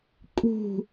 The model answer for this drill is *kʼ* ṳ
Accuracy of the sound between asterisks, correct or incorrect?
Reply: correct